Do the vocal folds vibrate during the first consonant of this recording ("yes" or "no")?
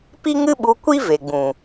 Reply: no